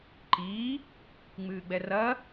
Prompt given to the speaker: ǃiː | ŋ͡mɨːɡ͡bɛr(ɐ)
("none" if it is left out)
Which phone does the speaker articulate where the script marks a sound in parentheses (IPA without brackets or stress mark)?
ɐ